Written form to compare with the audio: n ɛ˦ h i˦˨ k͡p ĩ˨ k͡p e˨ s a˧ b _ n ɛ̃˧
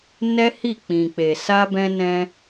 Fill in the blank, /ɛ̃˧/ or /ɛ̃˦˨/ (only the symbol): ɛ̃˧